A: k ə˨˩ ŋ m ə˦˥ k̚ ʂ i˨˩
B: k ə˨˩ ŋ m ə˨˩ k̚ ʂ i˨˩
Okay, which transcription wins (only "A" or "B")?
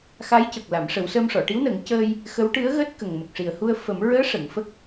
B